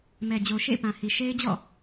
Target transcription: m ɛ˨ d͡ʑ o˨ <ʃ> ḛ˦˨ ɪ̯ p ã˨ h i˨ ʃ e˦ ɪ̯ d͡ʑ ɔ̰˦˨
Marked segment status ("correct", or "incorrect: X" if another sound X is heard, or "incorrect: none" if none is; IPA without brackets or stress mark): correct